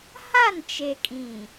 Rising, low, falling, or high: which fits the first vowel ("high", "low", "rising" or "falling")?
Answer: falling